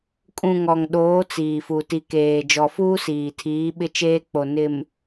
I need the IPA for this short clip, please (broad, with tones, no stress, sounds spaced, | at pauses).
kʼ ũ˨ ŋ ɔ˨ ŋ ɗ oː˨˦ t͡s iː˨ f u˨ t i˨ k eː˨ d͡ʒ ɔ˨ f uː˦ s iː˨ tʰ iː˨˦ ɓ ɪ˦ t͡ʃ eː˦ k͡p o˨ n ɪ˨ m